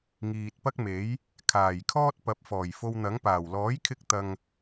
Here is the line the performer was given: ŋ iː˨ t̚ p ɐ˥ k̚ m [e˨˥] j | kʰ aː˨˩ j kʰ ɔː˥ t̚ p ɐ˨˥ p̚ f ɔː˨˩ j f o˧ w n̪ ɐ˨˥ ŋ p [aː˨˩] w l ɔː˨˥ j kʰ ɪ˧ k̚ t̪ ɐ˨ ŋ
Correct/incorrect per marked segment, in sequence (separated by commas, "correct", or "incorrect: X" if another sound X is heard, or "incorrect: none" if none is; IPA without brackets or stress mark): correct, correct